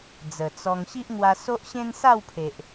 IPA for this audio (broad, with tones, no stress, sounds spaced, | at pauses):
d͡z ə˨˩ t͡s ɔ˧ ŋ ɕ i˦ ʔ ŋ w a˧ s o˦ ʔ ɕ ẽ˦ n s a˥˧ w pʰ e˨ ʔ